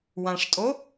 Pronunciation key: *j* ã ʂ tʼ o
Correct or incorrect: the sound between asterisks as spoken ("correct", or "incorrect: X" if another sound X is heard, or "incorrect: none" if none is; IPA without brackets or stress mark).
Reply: incorrect: w